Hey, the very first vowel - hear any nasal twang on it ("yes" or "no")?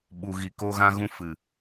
no